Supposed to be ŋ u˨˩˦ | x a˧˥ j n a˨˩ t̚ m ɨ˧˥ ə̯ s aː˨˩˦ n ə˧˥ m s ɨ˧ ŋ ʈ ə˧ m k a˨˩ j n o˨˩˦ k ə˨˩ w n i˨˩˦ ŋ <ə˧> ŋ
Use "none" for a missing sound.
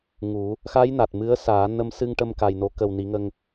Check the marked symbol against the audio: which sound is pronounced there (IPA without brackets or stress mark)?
ə˧